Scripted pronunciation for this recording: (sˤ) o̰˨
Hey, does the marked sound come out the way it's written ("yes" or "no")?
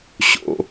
no